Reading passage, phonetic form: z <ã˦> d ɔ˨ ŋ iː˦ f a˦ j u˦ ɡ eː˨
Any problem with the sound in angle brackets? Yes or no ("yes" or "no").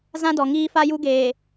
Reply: no